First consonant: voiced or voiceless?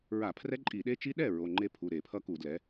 voiced